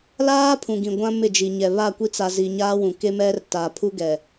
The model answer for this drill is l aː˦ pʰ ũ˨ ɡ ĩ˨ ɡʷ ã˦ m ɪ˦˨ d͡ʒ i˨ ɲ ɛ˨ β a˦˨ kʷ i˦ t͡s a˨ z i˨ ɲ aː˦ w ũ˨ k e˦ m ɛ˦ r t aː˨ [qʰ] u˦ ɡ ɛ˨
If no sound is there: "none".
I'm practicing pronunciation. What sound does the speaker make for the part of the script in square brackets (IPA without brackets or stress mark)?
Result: pʰ